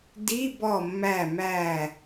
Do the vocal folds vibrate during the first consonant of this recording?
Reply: yes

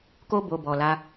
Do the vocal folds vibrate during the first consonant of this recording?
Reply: no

